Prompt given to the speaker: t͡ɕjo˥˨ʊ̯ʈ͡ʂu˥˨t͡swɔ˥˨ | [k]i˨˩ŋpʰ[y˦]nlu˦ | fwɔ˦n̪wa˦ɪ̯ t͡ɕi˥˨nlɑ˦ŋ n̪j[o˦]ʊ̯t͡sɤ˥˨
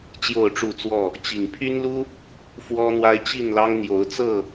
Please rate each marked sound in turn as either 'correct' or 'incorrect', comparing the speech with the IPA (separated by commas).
incorrect, correct, incorrect